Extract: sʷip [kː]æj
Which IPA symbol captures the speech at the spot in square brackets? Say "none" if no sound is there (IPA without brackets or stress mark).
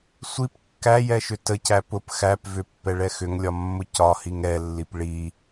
kː